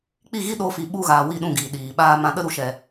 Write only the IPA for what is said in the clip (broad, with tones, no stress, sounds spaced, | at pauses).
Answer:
k͡p i˦˨ ɣ i˦ ɗ o˧ f i˨ ɓ u˧ ɣ aː˨ w i˦˨ ɗ ũ˦˨ ɡ iː˨ ɗ iː˨ ɓ aː˧ m ã˧ ɗ ə˧ ɾ u˨ ʃ ɛ˨